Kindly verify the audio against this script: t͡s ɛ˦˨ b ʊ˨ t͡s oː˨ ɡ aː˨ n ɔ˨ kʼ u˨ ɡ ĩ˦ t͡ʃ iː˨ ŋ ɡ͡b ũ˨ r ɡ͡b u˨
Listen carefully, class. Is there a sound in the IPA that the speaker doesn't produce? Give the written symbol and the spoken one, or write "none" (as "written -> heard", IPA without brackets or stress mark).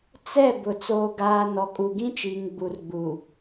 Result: ũ˨ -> u˨